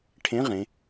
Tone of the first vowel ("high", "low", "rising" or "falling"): rising